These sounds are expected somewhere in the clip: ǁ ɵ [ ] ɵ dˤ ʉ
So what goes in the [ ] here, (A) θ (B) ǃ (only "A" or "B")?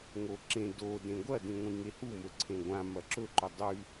B